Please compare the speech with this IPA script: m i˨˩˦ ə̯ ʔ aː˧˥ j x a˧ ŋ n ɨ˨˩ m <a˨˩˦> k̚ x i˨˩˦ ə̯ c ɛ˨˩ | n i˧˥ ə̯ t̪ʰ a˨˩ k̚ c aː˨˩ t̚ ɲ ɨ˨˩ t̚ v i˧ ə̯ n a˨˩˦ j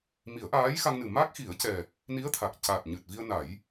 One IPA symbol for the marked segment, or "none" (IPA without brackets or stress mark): a˦˥